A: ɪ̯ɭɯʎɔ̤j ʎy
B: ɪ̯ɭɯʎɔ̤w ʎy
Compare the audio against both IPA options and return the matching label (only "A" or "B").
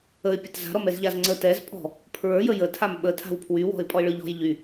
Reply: A